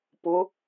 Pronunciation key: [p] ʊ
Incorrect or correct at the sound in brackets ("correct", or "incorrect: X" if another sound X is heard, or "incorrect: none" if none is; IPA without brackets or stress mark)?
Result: correct